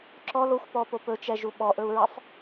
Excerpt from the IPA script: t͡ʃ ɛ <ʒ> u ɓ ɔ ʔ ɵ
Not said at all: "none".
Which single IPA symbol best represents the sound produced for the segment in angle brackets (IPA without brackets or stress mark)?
ʒ